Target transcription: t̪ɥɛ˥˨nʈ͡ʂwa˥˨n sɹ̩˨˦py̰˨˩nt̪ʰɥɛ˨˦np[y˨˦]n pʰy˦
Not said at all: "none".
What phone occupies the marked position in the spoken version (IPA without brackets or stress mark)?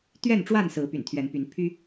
y˨˦